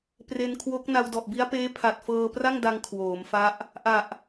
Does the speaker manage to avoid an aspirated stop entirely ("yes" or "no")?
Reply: no